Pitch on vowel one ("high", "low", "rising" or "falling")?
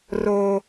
high